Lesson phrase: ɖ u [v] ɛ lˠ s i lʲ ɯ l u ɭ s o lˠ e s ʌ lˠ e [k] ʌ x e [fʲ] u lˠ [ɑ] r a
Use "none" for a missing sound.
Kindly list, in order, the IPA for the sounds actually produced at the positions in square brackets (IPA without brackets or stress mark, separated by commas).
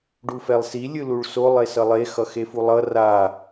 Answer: f, x, f, ʌ